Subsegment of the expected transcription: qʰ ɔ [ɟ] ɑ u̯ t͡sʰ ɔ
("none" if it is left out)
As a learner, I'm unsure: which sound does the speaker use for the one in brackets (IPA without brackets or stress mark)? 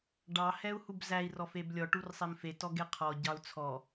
ɟ